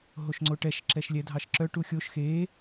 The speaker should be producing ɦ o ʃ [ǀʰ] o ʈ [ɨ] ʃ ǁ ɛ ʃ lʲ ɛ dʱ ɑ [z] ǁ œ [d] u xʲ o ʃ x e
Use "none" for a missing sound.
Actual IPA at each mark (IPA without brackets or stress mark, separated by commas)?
ŋ͡ǀ, ɛ, ʃ, ʈ